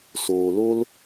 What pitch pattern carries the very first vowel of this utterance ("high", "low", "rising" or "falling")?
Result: low